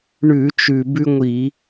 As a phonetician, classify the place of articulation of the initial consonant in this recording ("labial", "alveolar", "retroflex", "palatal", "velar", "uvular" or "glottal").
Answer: retroflex